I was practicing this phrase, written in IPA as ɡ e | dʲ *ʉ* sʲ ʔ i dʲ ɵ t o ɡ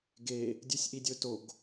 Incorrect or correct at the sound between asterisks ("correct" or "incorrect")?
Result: correct